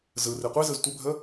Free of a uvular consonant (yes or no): no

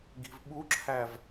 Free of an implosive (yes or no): no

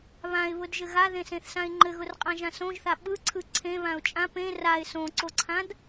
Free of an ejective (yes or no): no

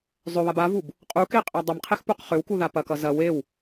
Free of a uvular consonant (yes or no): no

